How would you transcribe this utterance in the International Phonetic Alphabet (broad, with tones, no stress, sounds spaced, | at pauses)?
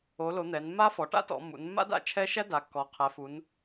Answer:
o˩˧ l o˩˧ n̪ ɛ˩˧ n mː a˦˥ f ɔ˩˧ ʈ a̰˦˥ t ɔ̰˩˧ mː ṵ˩˧ n mː a̰˦˥ d a̰˦˥ t͡ʃʰ ɛ˦˥ ʃ æ˦˥ d a˩˧ kː ɔ˩˧ qʰ ɛ˩˧ f u˩˧ n